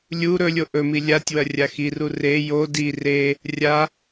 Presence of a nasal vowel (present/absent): absent